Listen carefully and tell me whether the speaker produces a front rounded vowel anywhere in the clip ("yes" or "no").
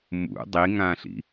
no